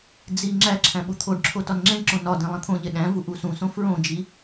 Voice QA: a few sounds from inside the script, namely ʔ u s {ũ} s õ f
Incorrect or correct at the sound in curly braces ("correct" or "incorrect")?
correct